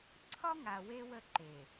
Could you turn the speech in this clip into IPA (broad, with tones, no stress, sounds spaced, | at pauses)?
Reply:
ǀʰ ɒ˦ ŋ a˨ w e˦ w ə˦˨ ǃ e˨